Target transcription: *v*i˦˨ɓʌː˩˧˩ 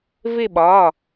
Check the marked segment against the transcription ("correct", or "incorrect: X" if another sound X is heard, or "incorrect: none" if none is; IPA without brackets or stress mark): correct